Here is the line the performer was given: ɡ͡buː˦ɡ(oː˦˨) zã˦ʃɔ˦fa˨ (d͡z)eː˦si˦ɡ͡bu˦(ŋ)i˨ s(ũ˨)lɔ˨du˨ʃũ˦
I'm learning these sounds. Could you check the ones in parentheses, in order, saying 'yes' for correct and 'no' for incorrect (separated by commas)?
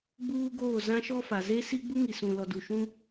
yes, no, yes, yes